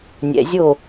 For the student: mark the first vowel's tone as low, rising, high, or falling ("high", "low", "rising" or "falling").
low